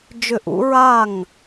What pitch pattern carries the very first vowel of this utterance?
falling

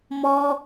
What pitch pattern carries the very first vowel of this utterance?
high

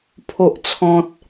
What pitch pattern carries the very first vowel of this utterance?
high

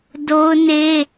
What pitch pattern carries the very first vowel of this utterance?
high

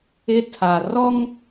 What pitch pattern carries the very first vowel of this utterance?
high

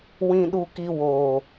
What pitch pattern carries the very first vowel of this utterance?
high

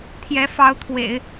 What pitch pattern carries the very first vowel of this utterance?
rising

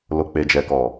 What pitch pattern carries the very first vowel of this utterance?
low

